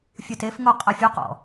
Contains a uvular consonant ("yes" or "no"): yes